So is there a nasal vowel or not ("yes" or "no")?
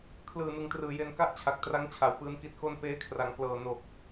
no